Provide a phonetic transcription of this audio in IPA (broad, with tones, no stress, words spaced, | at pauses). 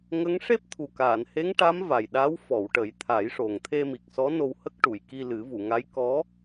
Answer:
ŋə˧˥ŋ ʂe˦˥p̚t̪ʰu˨˩kaː˨˩˨nhe˧˥ŋ ʈa˧˥m va˨˩jɗa˧˥wfɔ˨˩˨w ʈə˨˩˦jt̪ʰa˨˩˦jʂo˨˩ŋ t̪ʰe˧mi˨˩k̚sɔ˧˥ no˧whə˦˥k̚ʈu˨˩˨jki˧ lɨ˨˩˦vu˨˩˨ŋa˧˥j kɔ˧˥